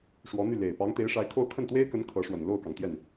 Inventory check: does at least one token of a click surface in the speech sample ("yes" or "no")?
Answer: no